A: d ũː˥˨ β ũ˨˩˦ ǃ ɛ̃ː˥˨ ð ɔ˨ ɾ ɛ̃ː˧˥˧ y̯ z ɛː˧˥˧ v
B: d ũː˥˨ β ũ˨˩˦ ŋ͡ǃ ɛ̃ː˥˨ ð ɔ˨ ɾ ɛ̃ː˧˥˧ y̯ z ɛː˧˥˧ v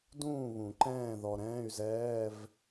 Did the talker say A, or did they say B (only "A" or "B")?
A